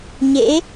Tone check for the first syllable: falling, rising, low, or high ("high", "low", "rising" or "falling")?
rising